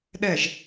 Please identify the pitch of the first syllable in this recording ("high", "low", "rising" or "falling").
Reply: low